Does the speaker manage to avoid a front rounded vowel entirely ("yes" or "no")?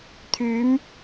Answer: no